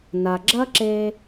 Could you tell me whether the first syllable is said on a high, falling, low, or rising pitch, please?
low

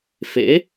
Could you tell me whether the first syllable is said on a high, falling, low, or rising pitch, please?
rising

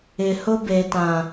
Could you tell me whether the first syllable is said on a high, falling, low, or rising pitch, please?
low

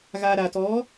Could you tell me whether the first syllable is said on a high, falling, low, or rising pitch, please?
low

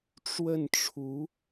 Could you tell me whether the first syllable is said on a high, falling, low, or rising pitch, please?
falling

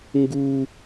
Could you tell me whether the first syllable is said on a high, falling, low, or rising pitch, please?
high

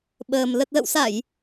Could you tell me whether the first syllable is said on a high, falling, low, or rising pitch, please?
low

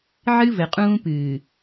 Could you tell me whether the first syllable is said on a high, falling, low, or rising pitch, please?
high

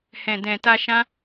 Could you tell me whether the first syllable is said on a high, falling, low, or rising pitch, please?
low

